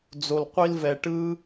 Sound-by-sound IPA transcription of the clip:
d͡z o˨ l qʷ i˧ l v ɛ˨ ʈ ɯ˦

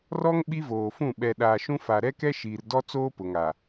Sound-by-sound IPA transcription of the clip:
r ɔ˦ ŋ ɓ i˦ v oː˨ f ũ˦˨ ɓ ɛ˨ ɗ aː˨ ʃ ũ˦ f a˨ ɾ ɛ˦ k ɛ˦ ʃ iː˨ r d ɔ˦ t͡s oː˦ p ʊ˨ ŋ a˨

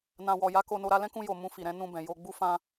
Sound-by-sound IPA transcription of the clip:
n ã˨ w ɔ˨ j a˨˦ k o˧ n o˧ ɾ a˧ l ɛ̃˦ k ũ˧ j o˨ m ũ˧ f i˨ ɾ ɛ̃˨˦ n ũ˧ b ɛ̃˨ j o˧ ɡ͡b u˦ f ã˧

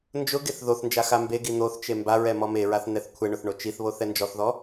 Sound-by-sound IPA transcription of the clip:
n d͡ʒ ʊ ɡ e θ ð o θ n d͡ʒ a x a m b e ɡ i n̪ o θ t͡ʃ e m b a ɹ ɛ m ɔ m e ɹ a θ n̪ ɛ θ kʷʰ ɛ ɳ ʊ θ ɳ o t͡ʃ i θ β o θ ɛ n d͡ʒ ɔ θ ð ɔ

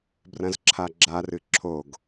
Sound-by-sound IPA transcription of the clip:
b r ɐ̃ z ǁʰ a ɡ͡ǁ a r ɨ ǁʰ o ɡ

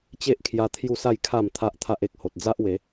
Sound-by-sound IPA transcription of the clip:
t͡ɕ e˦ ʔ kʰ j a˧ t̪ʰ j u˥˧ s a˥˧ j kʰ a˥˧ m t̪ʰ a˦ ʔ t̪ʰ a˦ ʔ e˨ k̚ h o˨ t̚ d͡z a˦ ʔ w e˨˦

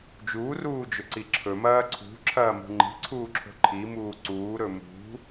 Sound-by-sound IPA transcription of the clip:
d͡ʒ uː r uː d͡ʒ ɵ ǀ i ǁʰ ɵ m ɐː ǀʰ ṳ ǁʰ ɐː m ṳ ŋ͡ǃ i̤ ǀʰ uː ǁʰ o̤ ǃʰ i m uː ǀ uː ɾ ɵ m ṳ

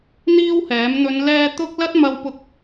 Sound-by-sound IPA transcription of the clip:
n̪ iː˥ w h ɛː˨˥ m n̪ ɵ˨˧ n l ɛː˧ t̪ ʊ˥ k̚ l ɐ˥ t̚ m ɐ˧ w p ʊ˧ k̚

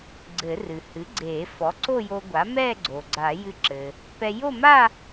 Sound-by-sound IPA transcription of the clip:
ɡ͡ǀ ɘ˨˩˦ r ɨ˩ h ɨ˩˥ ɡ͡ǀ eː˨˩˦ f ɔ˩˥ ǀ o˥˧ j o˧ ɡʷ a˩˥ m ɛː˥˧ ɡ͡ǀ o˩ ɡ͡ǀ a˨˩˦ j ɨ˧ ǁ ɘ˩ | p ɛ˧ j o˥˧ m a˥˧

